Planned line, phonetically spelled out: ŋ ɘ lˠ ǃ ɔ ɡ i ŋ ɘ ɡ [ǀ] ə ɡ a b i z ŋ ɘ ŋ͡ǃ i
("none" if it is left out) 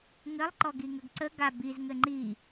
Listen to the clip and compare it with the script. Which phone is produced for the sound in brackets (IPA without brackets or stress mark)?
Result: ǀ